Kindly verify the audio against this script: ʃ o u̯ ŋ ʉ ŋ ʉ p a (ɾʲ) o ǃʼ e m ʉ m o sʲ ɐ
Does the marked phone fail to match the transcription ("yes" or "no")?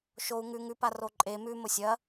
yes